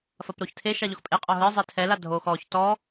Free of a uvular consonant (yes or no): no